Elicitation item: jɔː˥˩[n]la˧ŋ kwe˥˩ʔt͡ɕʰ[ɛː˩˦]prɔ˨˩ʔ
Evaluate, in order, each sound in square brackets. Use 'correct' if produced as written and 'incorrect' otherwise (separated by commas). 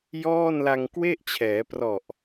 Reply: correct, correct